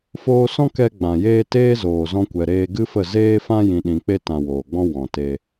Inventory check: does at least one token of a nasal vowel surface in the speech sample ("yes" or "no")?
yes